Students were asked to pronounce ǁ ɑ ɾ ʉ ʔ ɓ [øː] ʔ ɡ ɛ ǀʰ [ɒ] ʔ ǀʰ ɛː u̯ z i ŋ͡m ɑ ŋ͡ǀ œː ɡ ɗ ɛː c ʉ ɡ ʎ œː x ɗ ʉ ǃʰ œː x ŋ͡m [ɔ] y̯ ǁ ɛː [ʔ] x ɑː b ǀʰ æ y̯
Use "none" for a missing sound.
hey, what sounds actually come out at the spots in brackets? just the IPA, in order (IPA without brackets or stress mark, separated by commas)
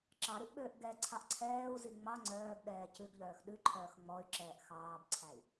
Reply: øː, ɑ, ɔ, ʔ